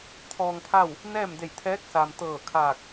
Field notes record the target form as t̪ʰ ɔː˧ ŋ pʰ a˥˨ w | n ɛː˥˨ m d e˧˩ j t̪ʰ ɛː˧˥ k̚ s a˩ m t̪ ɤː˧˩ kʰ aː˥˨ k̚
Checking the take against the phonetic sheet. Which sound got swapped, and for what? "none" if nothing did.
aː˥˨ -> aː˧˩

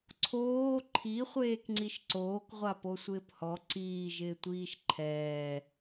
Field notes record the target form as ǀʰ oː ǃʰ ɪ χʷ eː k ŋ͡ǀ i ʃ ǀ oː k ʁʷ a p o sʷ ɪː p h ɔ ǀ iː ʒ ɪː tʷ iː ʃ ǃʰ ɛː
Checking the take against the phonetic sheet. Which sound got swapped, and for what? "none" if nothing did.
ɪ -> i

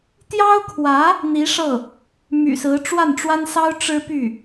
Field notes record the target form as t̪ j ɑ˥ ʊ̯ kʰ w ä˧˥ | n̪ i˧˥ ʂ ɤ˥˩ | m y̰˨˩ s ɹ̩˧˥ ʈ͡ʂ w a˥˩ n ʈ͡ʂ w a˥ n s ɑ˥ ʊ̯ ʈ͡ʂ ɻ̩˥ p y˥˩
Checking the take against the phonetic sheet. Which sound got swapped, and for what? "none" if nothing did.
none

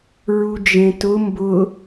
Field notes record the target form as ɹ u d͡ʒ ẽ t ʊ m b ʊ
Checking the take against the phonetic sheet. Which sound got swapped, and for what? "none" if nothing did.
none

